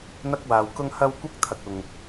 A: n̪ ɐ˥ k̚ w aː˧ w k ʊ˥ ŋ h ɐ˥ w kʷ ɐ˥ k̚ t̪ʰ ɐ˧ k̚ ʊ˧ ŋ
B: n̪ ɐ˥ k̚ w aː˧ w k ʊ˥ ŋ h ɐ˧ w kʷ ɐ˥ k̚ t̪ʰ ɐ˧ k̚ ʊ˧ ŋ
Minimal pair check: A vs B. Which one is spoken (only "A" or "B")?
A